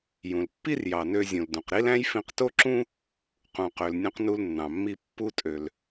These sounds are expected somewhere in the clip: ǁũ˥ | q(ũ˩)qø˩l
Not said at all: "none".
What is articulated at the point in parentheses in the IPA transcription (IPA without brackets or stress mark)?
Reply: ũ˩